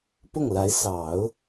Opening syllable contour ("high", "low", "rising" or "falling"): falling